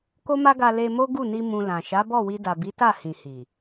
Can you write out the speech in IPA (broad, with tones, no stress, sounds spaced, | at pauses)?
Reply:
k o˦ m a˦ ɡ a˧ l e˧ m o˦ ɡ u˦˨ n i˧ m ũ˨ l ã˨ ʃ a˨˦ b ɔ˦˨ w i˧ d a˨ b i˨˦ t a˦˨ h ĩ˨ h i˨